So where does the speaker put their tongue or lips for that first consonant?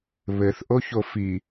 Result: lips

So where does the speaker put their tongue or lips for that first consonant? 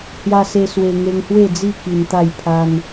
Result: throat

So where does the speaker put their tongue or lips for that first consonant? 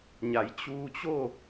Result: palate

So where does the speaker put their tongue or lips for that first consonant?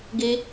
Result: velum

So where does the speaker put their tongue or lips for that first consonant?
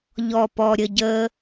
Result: palate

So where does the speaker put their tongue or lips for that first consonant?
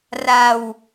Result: tongue tip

